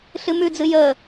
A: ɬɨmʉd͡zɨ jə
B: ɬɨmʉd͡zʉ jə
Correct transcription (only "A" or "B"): A